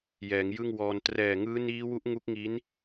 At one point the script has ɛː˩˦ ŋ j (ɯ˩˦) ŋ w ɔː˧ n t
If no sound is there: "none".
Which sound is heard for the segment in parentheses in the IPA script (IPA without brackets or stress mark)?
ɯ˥˩